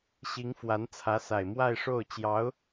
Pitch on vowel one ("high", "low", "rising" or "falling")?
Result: rising